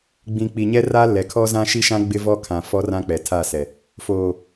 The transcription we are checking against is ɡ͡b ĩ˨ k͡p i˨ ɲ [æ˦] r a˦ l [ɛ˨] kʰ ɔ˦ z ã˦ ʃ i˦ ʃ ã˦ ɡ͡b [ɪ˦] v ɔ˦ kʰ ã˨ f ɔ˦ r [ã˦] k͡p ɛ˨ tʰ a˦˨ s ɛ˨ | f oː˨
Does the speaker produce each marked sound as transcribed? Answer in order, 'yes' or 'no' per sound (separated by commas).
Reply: no, yes, yes, yes